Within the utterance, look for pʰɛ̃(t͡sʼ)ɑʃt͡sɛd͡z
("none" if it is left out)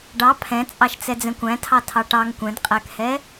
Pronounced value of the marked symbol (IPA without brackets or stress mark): t͡sʼ